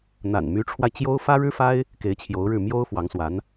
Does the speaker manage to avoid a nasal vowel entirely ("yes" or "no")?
yes